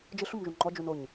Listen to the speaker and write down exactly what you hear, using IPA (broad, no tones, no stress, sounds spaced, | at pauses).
d͡ʒ ɯ ɬ u m ʒ u ŋ͡ǃ ɔ d͡ʒ u n o ɲ